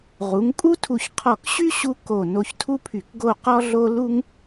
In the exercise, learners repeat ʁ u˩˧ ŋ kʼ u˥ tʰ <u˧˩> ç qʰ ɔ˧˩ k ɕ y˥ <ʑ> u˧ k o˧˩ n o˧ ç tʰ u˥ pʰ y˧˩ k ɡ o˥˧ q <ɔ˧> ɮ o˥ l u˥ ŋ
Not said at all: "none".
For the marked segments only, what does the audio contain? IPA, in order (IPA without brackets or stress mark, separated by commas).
u˧˩, ɕ, ɔ˥